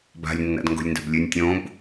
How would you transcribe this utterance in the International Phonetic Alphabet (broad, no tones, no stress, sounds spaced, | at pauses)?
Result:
b a̤ lʲ nː a̰ d ŋ ɡ o̤ lʲ n d a̤ b lʲ ʉ nʲ tʲ õ b